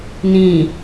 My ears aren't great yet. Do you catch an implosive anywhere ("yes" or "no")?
no